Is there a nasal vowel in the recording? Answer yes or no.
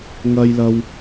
no